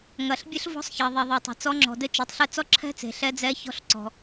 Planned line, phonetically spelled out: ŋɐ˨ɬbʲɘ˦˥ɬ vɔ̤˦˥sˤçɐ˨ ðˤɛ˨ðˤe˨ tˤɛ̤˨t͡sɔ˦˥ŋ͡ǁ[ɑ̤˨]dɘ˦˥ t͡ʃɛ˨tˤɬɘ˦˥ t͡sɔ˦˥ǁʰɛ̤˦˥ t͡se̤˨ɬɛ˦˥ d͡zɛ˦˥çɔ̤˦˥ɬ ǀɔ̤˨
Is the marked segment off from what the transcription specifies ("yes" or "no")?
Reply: yes